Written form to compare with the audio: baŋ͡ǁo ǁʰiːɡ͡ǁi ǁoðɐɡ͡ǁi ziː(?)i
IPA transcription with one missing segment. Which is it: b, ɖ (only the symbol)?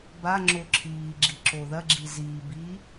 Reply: b